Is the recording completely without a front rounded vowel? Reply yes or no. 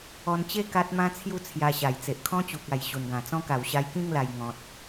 yes